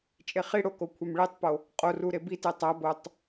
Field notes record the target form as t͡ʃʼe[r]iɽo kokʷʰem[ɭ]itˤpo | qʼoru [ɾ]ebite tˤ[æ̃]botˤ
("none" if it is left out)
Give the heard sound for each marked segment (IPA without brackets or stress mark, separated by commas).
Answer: χ, ɭ, ɾ, æ